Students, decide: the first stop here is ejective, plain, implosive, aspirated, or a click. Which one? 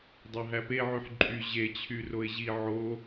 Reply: plain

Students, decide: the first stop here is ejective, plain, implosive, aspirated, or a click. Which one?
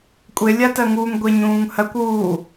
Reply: ejective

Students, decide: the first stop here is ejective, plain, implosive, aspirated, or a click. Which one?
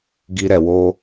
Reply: plain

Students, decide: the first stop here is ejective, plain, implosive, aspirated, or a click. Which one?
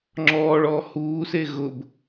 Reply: click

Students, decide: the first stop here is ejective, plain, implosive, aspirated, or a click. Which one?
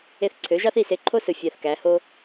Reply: click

